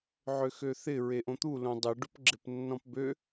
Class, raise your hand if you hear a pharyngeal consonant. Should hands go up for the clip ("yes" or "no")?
yes